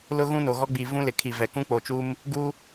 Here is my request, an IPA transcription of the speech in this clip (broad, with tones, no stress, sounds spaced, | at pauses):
l ʊ˦ ɣ ũ˦ n o˨ ɣ ɔ˦ ɡ͡b i˨ v ũ˦ l ɪ˨ kʰ i˨ v ɛ˨ k ũ˦ k͡p o˨ t͡ʃ u˦ m | ɡ u˦